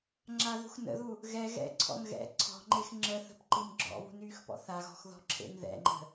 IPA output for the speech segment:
ŋ͡ǁ a ð ṳ x n ə̰ ð u | ɣ ɛ ɣ ɛ̰ ǀʰ ɔ̰ n ɣ ɛ̰ ǀʰ ɔ̤ ŋ͡ǃ e x ŋ͡ǁ ə θ ə̤ p ǃ i n ɡ͡ǁ ɔ̰ β ṳ n yː x p ɔ̰ θ a ɣ ɔ̤ x ð ɔ̤ ǁʰ ḛ n ð ɛ̰ ŋ͡ǃ ə̤

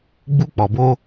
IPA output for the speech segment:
ɡ͡b u˧ k͡p ɔ˨ b o˧

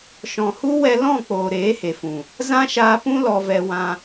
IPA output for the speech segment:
ʃ ɔ̃˨ h u˦ w ɛ˧ l ɔ̃˦˨ k͡p oː˨ ɾ eː˨˦ h e˨ f ũ˨ | z ã˦ ʃ aː˧ p ũ˦ l ɔ˧ v ɛ˧ w ã˧

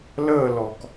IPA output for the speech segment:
l əː˦˨ l ɔ˩ k

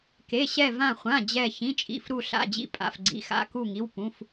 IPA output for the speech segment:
k e˩˧˩ ɕ ɛ˧˩ v ã˧˩ χʷ ã˩˧˩ d͡ʑ ɛ˧˩ ç ĩ˩˧˩ t͡ʃʼ ḭ˩˧˩ f ɾ u˧˩ ɬ a̰˩˧˩ d͡ʑ ḭ˧˩ pʼ a̰˩˧˩ f ɡ͡ǀ ḭ˩˧˩ x a̰˩˧˩ k u˧˩ ŋ i˩˧˩ w p ũ˩˧˩ f

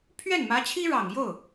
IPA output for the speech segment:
pʰ ɥ ɛ˥˩ n m ä˧˥ t͡ɕʰ i˥ ɻ ɑ˨˩ ŋ j o˥˩ ʊ̯

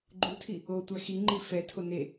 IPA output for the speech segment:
ɡ͡ǃ u tʰ i | o tʷ a x i ŋ͡ǃ i f ɛ tʰ o n e

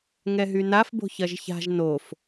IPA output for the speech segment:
ŋ ɛ ɦ y n a f b o̤ ç ɐ ʒ ç a̤ ʒ n o f

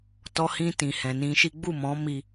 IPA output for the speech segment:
t ɔ˧ h ĩ˧ t ĩ˨ h ɛ̃˨ n ĩ˧ ʃ i˦ ɡ͡b u˦˨ m ɔ̃˨˦ m i˧

